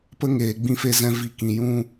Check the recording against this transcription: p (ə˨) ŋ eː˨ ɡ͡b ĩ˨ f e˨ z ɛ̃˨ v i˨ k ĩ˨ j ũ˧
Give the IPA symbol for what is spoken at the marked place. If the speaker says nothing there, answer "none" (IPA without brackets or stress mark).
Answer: ə˧